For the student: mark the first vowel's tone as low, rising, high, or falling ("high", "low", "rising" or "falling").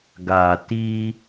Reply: low